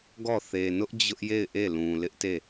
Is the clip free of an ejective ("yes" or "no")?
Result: yes